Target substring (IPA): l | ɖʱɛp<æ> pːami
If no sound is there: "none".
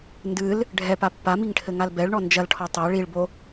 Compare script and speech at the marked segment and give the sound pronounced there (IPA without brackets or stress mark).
a